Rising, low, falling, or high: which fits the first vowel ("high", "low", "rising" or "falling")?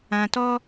low